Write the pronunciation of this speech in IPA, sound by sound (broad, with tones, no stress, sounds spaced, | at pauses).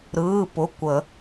ɾ ɯː˩˧˩ p ʊ˩˧˩ kʷ ə˨˩˦